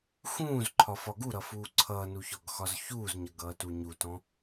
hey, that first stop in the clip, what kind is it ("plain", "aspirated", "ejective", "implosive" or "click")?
click